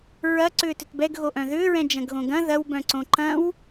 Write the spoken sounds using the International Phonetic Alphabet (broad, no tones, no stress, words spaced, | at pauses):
ɹɐ ǀʏːtʏtbɛɡ ɣoʔœ̃ðʏːɹɛ̃ d͡ʒɐ̃ɡɣõɡɐ̃ ðɐwbœ̃ ǀõǃɐ̃w